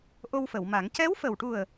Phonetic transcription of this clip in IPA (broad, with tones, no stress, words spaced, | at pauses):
ʔo˧wfə˨˩˨wma˨˩˦ŋ cɛ˧˥wfə˨˩wʈu˨˩ə̯